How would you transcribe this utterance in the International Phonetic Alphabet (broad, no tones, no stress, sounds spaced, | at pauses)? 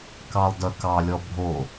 k ɑ lˠ d œ k ɑ lʲ ɔ bʱ o